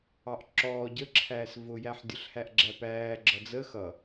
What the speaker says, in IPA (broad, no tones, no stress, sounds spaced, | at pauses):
ɑ ʔ ǁ ɔː ɟ ə ǁʰ æː s v ʊ j æ ħ dʲ ʊ ɬ h æ ʔ ɡ͡ǁ æ p æː ɡ͡ǁ ʌ d͡z ə x ʌ